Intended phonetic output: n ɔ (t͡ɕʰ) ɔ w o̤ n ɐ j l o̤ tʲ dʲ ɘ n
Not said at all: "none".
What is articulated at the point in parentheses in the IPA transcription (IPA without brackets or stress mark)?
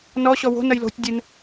ɕ